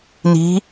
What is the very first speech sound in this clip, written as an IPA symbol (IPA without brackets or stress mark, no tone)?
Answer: n